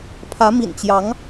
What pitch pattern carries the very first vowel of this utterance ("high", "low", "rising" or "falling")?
rising